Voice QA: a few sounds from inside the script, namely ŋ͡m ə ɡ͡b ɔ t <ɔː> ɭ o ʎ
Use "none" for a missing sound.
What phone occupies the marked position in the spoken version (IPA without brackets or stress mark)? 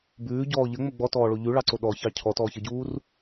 ɔː